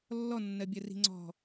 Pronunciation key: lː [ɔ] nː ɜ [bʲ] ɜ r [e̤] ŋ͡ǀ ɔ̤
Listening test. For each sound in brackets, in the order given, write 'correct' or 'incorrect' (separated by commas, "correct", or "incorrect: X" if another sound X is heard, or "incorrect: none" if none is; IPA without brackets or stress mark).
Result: correct, correct, incorrect: i̤